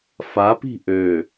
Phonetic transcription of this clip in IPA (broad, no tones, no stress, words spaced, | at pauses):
fa pi̤ʔø